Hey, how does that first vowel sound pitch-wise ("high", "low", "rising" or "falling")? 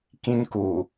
high